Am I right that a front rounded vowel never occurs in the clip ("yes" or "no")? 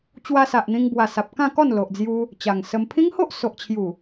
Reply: yes